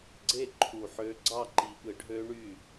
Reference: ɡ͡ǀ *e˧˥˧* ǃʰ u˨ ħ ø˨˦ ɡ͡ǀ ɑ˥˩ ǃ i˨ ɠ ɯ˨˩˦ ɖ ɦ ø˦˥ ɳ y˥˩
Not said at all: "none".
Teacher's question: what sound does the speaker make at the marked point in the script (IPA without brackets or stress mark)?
e˥˩